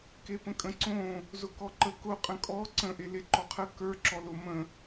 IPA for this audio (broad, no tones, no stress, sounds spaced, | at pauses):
k e p ə̃ kʼ ə̃ ǀ õ | z ʊ k ɔ ǃ ə k ʊ qʼ ə̃ kʼ ɔ ǀ ə̃ ʔ e l e ǃ ɔ qʰ ə k ə˞ ǁ ɔ l ʊ m ə̃